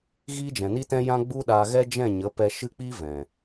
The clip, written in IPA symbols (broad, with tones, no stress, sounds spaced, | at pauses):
ɣ iː˦ d͡ʒ ɛ̃˨ n i˦ t ɛ̃˦ j ã˦ ɡ͡b u˦ ɗ aː˧ ɣ ɛ˦ d͡ʒ ɛ̃˦˨ ɲ ə˨˦ p ɛ˧ ʃ ɨ˦ k͡p iː˦ v ɛ̃˨